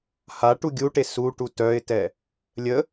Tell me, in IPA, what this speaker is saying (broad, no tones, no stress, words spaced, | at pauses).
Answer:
haʈu ɡʲuʈe suʈu tœɪ̯tɛ | lʲə